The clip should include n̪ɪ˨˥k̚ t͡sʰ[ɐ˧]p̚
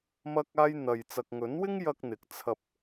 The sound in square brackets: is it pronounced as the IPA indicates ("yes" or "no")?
yes